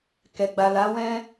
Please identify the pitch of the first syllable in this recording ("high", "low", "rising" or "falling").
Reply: low